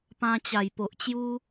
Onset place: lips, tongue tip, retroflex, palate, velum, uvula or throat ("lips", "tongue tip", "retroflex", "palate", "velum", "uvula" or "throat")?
lips